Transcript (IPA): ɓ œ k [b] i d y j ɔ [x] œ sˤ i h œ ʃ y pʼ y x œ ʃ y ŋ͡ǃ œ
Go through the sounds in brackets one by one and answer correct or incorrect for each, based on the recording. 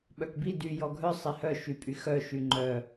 correct, incorrect: ɡʱ

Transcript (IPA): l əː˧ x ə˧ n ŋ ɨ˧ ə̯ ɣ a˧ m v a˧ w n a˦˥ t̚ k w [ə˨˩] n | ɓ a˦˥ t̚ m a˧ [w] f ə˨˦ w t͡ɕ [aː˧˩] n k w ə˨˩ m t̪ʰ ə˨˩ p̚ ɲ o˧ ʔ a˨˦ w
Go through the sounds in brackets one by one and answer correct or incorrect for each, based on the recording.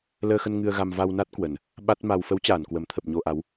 correct, correct, correct

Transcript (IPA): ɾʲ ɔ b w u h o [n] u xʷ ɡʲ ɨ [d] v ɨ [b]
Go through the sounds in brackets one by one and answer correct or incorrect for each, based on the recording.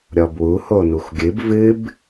correct, incorrect: b, correct

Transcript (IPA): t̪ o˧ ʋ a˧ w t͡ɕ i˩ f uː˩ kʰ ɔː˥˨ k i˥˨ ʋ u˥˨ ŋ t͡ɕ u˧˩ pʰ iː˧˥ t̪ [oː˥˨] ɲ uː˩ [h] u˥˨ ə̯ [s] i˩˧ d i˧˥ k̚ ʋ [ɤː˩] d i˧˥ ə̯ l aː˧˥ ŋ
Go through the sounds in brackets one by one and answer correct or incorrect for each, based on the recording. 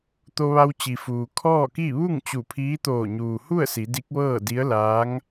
incorrect: oː˧˩, correct, correct, incorrect: ɤː˥˨

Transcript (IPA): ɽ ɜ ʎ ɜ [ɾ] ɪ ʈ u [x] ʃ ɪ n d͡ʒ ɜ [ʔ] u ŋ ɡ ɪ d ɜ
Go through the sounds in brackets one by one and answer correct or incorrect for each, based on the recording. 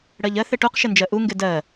incorrect: θ, incorrect: q, correct

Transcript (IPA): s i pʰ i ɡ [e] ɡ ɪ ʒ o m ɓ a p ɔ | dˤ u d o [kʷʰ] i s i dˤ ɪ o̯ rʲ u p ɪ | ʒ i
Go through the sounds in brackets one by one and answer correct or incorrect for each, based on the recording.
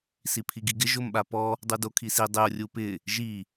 incorrect: i, incorrect: kʰ

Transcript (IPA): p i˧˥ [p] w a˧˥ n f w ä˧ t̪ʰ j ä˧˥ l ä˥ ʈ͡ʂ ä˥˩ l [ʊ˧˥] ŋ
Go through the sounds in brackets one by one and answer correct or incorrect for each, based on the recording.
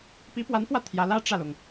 correct, incorrect: ʊ˩

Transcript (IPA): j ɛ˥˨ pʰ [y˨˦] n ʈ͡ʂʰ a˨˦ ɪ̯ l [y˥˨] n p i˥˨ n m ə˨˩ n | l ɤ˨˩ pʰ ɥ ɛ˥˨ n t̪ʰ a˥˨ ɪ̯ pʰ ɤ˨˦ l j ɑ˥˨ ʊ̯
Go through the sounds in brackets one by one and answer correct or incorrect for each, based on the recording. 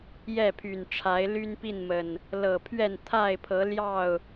incorrect: y˨˩, incorrect: y˦

